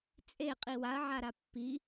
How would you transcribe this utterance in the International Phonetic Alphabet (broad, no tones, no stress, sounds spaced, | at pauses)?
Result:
t͡sʼ e qʼ i w a ɐ̯ ʕ a ɾ a pː i